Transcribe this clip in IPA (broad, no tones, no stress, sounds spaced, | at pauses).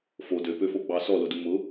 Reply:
f o d ø p ø f o ɡ͡b ɑ s ɔ l ʊ d u m ʊ